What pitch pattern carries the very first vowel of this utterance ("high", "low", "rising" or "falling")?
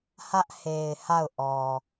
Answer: high